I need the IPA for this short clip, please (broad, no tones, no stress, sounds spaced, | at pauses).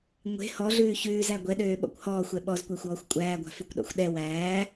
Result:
ŋʷ e̤ h ɔ ɮ ʉː ç ʉː z æ ɡʷ ɛ ɗ øː ɓ ɔ̰ kʷ h ɔː xʷ ɛ ɓ ɔ z kʷ æ xʷ ɔː xʷ kʷʼ æː ɡʷ a̤ f ʉ kʷ ɗ ɔ̰ xʷ ɗ ɛ w æː